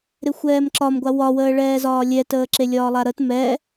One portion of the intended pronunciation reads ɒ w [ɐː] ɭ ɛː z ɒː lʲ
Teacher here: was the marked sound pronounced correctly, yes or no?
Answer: no